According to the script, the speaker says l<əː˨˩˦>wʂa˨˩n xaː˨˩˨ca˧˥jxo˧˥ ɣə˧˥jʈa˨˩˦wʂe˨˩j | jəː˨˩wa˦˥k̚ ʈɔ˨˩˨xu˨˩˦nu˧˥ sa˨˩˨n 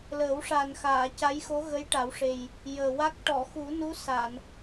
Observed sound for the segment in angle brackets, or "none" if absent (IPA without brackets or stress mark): əː˨˩˦